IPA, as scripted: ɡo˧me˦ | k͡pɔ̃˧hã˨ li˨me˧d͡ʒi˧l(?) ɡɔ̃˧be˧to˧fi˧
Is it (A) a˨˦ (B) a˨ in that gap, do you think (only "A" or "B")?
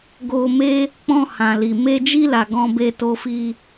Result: B